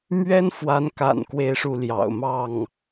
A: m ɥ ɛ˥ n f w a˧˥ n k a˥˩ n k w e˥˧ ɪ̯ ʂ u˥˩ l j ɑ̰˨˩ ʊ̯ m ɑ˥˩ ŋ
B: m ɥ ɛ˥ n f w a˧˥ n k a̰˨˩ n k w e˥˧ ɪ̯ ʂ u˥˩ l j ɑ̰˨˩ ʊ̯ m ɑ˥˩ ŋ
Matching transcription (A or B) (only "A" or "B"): B